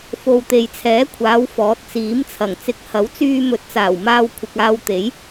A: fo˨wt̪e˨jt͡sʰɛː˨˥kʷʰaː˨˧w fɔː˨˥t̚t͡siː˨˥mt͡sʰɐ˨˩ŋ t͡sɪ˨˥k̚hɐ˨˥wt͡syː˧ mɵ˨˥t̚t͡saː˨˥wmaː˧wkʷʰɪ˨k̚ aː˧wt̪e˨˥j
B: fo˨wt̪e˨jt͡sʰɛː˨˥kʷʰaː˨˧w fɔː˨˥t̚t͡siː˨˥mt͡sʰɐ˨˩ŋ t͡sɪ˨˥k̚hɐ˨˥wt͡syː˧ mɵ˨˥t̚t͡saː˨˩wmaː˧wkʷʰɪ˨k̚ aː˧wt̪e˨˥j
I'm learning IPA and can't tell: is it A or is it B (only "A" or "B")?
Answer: B